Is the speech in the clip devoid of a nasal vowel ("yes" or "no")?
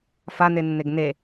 yes